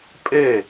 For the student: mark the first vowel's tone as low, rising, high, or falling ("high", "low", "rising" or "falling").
falling